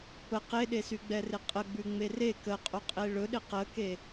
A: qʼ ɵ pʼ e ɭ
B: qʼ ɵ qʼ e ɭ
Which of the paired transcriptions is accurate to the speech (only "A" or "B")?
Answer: B